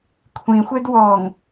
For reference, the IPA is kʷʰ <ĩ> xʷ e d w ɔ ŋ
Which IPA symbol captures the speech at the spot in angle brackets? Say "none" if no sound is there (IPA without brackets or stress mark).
ĩ